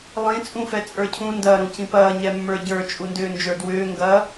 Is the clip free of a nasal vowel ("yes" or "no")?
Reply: no